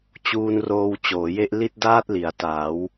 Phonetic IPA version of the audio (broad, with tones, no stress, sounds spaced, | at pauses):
t͡ɕ uː˧ n r oː˧ w t͡ɕ oː˩˦ j e˥˩ ʔ l i˥˩ t̚ d aː˥˩ t̚ l i˩˦ a̯ t aː˩˦ w